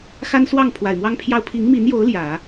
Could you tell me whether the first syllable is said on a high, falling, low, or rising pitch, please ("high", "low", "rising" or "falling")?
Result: high